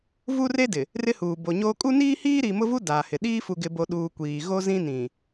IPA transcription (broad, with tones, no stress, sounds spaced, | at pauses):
v u˦ r e˦ d ɪ˨ | r ɪ˦ h uː˨ b o˨ ɲ oː˦ kʼ u˦ n iː˦ h iː˦ ɾ i˨ m ʊ˦ v u˦ d aː˨ h ɪ˨ ɗ iː˦ f u˨ ɡ ɪ˨ b o˨ ɗ uː˨ kʷ iː˨ ɣ o˦ z ĩ˦ n ĩ˨